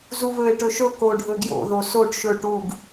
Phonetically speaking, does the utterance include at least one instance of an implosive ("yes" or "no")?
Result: no